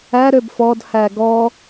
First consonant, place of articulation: alveolar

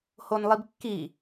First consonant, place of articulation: glottal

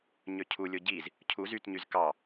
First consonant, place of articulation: palatal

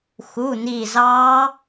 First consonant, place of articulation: velar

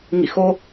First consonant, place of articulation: velar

